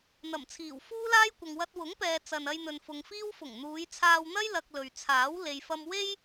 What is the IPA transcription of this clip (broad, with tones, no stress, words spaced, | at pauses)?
n̪ɐ˨˩mt͡sʰiː˨˩w fuː˥laː˥jkʷɐ˨ŋ wɐ˧t̚wʊ˨˥ŋpɛː˨ t͡sɐ˨nɐ˧j n̪ɵ˨nfʊ˨ŋfiː˥w fʊ˨˩ŋn̪uː˨˧jt͡sʰaː˧wn̪ɐ˥j lɐ˧k̚lɵ˨ɥt͡sʰaː˨˥w le˨jfɐ˧mwe˥j